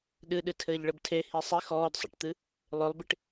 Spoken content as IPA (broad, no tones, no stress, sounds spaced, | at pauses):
ɗ ɨ ɗ ɨ tʰ ɘː ʎ ɭ ɘ b tʰ e h i sˤ i x ɔː d sˤ ḛ ʈ t̪ ɨ | lˠ ø lˠ b i ʈ